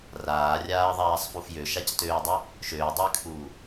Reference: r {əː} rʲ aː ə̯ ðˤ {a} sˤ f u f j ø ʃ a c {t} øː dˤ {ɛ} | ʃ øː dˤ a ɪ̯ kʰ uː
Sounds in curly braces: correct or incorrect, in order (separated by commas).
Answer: incorrect, incorrect, correct, incorrect